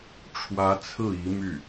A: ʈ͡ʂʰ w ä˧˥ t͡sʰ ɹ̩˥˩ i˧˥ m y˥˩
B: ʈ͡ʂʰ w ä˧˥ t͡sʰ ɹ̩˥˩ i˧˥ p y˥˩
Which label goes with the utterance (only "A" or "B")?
A